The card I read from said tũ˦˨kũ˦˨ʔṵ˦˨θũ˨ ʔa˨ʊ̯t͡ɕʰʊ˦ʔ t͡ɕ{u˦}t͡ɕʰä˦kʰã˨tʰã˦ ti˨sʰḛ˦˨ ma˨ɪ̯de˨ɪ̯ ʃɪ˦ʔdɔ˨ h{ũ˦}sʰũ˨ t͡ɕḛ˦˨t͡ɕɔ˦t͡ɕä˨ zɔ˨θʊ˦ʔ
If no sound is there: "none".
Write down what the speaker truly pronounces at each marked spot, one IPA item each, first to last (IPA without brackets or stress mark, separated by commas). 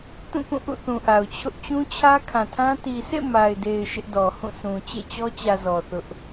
ũ˦, ũ˦˨